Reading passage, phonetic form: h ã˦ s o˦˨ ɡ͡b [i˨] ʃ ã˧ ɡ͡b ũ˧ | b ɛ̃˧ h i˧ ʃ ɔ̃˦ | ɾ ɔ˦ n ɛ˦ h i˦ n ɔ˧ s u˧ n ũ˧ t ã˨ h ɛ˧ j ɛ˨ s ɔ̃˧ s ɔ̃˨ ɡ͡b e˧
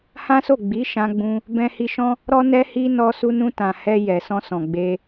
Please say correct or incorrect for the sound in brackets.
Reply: incorrect